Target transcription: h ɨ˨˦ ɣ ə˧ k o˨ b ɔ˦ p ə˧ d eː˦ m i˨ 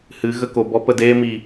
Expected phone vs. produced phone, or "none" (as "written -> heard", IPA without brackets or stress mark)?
none